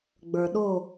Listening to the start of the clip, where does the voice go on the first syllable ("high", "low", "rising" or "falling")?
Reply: low